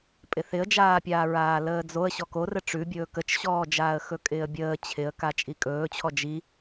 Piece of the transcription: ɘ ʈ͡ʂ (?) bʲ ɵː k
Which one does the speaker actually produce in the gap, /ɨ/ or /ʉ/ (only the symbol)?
ʉ